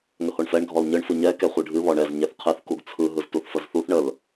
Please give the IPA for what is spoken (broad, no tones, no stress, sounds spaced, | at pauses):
ŋ ə h o ɳ f ɛ ɳ ɡʱ ɔ l ɲ ɯ ɳ f ɯ ɲ ɛ k ɛ χʷ ɨ ɖʱ ɨ β ɔ ɳ ɛ z ɲ ɛ θ qʰ ɨ θ k u ɡ t͡sʰ ɯ ɦ ɯ z t u θ f ə z θ u θ ɳ ə l